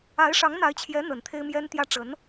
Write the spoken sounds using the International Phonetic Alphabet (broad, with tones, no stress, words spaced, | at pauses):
a˧˥ɪ̯ʂɑ˧˥ŋn̪a˧˥ɪ̯t͡ɕʰjɛ˧˥ n̪ə˨˩nt̪ʰe˥ɪ̯mjɛ˥nt̪jä˥ ʈ͡ʂə˧˥n